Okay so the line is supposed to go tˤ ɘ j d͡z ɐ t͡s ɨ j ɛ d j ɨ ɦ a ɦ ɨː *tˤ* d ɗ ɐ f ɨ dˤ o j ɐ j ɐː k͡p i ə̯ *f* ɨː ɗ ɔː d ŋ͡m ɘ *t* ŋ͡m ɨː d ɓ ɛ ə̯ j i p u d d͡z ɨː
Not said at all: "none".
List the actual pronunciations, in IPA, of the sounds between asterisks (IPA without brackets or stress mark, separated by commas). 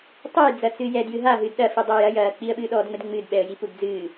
none, ɓ, d